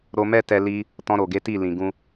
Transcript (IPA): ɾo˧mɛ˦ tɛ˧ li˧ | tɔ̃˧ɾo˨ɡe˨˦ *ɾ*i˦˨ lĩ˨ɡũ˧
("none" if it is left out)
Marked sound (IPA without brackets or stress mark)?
t